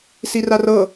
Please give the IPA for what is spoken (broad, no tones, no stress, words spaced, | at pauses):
sirarɤ